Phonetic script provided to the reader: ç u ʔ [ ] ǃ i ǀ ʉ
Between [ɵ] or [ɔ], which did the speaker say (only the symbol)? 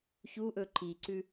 ɵ